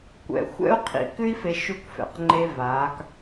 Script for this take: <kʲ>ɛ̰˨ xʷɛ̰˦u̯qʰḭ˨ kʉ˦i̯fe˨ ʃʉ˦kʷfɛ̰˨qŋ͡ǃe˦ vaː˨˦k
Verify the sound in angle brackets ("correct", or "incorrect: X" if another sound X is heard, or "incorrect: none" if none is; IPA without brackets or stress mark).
incorrect: kʷ